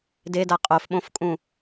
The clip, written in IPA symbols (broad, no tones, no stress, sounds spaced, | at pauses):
d e d a qʼ o f ɓ õ f kʼ ũ